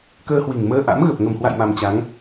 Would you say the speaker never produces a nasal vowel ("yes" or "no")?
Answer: yes